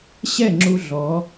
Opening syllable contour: falling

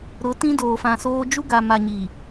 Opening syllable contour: rising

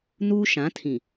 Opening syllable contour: high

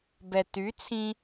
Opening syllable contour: low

